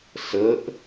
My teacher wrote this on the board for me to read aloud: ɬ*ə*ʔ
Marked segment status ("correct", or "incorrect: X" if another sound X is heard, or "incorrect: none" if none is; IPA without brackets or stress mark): correct